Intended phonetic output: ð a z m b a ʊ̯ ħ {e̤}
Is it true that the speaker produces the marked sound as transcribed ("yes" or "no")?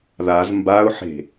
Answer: yes